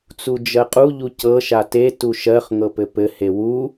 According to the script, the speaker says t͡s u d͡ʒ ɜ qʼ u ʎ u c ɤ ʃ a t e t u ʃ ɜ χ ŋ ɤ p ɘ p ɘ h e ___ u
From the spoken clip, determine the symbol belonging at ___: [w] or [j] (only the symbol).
w